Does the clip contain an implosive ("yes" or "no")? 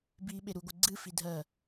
yes